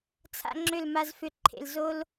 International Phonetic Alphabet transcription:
t͡sʰa̰˦ŋ͡ǁʏ˦˨lma˧zfʏ˧ ǃʰḛ˨l zo˦l

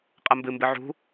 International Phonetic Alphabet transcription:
qʼɐmbɨmbɨ ʕṳ

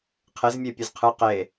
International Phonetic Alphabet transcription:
qʰezmʲe pʲezqʰɯ qe

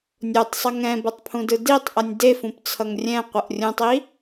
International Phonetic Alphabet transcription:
nʲotˤsˤʌ ŋɛ̃bʌtˤpʰũdɯ ditˤʔʌnʲ defũpt͡sʰʌŋ rʲɛ̃qʷʌʔ rʲũtˤi

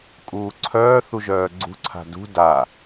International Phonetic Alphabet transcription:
kʼuːǀʰœːθu ʒœːɡ͡ǀṳǀʰa̤ dṳ da

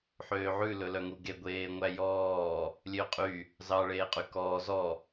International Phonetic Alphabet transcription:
ħøːʕʉ lɵlœŋuɡe ɡʷeːŋʷæjɔː | lʲøqʼy | zɑ ɭeːqʼykɔː zɔ

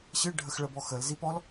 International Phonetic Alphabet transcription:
ɕɨɖʱəxɭəbɔ xəlzip ɔl

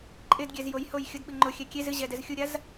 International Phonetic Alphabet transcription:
ǃʼɪdɡʲɛz jojhoj xʲʊdɓɨ ŋ͡ǃʊxʲɛ kʲez ɨʑɛdɛz xʲuɾʲaz

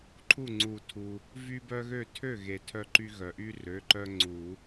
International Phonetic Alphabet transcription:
ǃʰu˥˩ŋ͡ǀu˨˩˦ tʰu˩ | vy˦bœ˦ɣø˥˩ tʰø˥˩ɣe˩ tʰœ˦ǃy˦ɣœ˩ ʔy˦rø˩˧˩ ǃœ˦ŋ͡ǀu˨˩˦

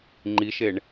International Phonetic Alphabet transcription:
ŋ͡ǃiʃeɳ

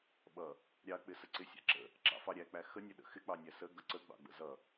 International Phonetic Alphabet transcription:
ɓʌ | ɾʲɑk͡pɪsə ǀɪsʲɑ̰ǁə̰ | ǁɑ̰fɑɾʲæk͡pæ xənʲəɗə̰ xɪk͡pɑnʲæ sə ɡʌǀəɡ͡bɑ̰ ɡ͡bə̰zʌ

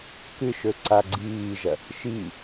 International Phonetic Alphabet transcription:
kɨʃɵ ǀaɡ͡ǀiːʒɐ | ʃi

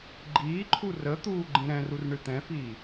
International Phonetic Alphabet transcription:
ɡ͡ǃiːǃʰu rə t̪uːɡ͡ǃĩɾɛ̃rur ɳɨt̪ɛ̃fiː

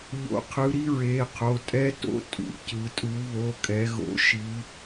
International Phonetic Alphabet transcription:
ʎo̰˨˦ qʰɯ˨˦ɾi˥ɹe˩˧˩qʰo˩˧˩ tʼɛ˥to̰˥ tʼṵ˩˧˩cɯ˨˦ tʼu˨˦βo˩˧˩kʼɛ˨˦ɣo̰˨˦ ʃi˨˦

